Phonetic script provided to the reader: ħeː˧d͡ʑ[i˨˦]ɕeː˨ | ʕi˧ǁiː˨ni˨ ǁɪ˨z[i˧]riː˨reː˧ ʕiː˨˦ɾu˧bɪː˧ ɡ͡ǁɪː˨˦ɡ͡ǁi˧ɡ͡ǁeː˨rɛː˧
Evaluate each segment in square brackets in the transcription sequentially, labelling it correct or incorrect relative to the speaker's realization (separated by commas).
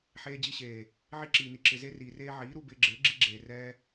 incorrect, incorrect